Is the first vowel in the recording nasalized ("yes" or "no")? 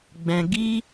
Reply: yes